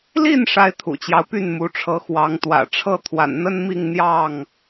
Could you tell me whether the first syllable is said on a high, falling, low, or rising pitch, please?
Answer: falling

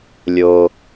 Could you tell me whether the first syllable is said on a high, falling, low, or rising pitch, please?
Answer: high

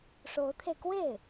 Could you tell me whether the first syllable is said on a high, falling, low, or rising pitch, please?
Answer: rising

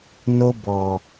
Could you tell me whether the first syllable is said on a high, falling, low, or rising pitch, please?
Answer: high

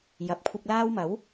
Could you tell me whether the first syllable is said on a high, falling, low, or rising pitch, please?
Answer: rising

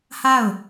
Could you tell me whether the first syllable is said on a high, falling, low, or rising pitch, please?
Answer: falling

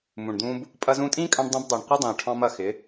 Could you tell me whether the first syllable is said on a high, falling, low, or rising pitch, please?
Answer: low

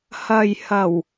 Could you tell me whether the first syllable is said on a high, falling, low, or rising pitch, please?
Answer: low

